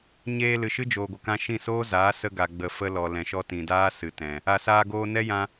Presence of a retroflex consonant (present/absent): absent